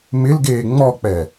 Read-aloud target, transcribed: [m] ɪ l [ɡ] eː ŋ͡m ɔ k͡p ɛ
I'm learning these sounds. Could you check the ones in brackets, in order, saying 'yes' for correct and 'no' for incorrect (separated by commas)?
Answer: yes, yes